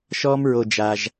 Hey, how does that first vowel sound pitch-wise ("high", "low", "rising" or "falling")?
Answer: high